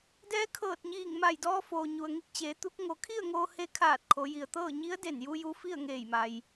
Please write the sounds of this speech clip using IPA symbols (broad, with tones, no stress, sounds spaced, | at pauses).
d ɛː˧˥ kʰ ɤː˧˩ t̚ ɲ iː˧˩ ŋ m a˧˩ j d ɔː˧ f oː˩ ɲ u˩ ə̯ ŋ i˧˩ k̚ t͡ɕ eː˩˧ t̪ u˧˥ k̚ ŋ o˩˧ kʰ i˥˨ ə̯ ŋ oː˧ h e˧˥ kʰ aː˧˩ t̚ kʰ o˩˧ j i˩ ə̯ t̪ ɤː˥˨ ɲ i˧˥ ə̯ d e˧˩ n j u˧ j u˧˥ f i˥˨ ə̯ ŋ eː˧˩ j m a˩ j